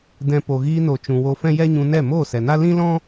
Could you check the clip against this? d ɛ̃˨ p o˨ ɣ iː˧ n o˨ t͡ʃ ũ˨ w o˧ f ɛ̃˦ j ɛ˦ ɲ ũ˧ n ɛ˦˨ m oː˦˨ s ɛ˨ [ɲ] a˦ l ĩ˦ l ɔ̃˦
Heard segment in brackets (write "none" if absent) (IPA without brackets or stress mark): n